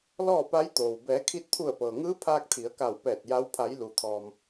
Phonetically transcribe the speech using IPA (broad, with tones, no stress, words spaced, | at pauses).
lɔː˥˨pa˧˥jt̪oː˩w bɛː˩˧kʰi˧t̚t̪ʰu˧˩ə̯ pɤː˩ŋɯː˧˥pʰaː˧k̚ t̪ʰi˩˧ə̯ka˧˩wpɛː˧˩t̚ ja˧˥w pʰa˩˧jlu˩t̪ʰɔː˩m